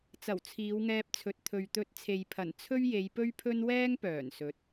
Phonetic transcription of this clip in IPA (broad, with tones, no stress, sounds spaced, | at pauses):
t͡s ɐ˨˩ w t͡sʰ iː˨˧ w ŋ ɛː˧ p̚ t͡sʰ ɵ˨ t̚ t̪ʰ ɵ˨ ɥ t̪ ɵ˧ t̚ t͡sʰ e˨ j pʰ ɐ˨˩ n t͡sʰ ɵ˥ ɥ j e˨˧ j p ɵ˥ ɥ pʰ ɵ˥ n w ɛː˥ ŋ p œː˨˩ n s ɵ˨˥ t̚